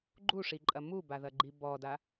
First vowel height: high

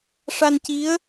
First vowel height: low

